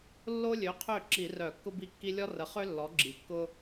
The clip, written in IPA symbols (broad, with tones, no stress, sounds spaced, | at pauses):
lː o˥ lʲ ø˩˥ qʰ ø˥˩ ǁ i˧˩˧ r œ˧˩˧ kː ʊ˥ b i˥˩ kː i˥ lʲ ɔ˥ r ə˩˥ χ ø˥ lː ɔ˩˥ ɡ͡ǁ i˩ kː ʊ˥